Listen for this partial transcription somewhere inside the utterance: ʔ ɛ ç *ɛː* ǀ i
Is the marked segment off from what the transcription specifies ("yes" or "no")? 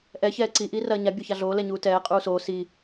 no